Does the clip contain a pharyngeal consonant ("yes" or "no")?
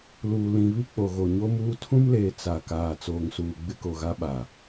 no